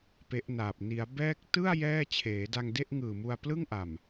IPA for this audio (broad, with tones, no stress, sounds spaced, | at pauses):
p e˦˥ ʔ n aː˨˩ p̚ n i˩˦ a̯ b ɛː˦˥ k̚ t ɯ˥˩ a̯ j ɛː˥˩ t͡ɕʰ eː˩˦ d a˧ ŋ d e˥˩ ʔ ŋ ɯː˨˩ m u˧ a̯ p l ɯ˥˩ ŋ ʔ a˨˩ m